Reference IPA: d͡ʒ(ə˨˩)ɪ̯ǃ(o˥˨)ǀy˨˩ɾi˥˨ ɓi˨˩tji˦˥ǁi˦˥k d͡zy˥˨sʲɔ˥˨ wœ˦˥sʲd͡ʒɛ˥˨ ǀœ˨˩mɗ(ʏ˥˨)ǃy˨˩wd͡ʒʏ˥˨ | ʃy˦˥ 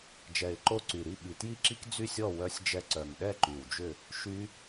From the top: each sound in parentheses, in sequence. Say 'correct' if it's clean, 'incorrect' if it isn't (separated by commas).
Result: incorrect, correct, incorrect